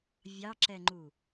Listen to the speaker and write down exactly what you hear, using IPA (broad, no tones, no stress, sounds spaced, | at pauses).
vʲ ɑ ǁ ɛ ŋ͡ǃ u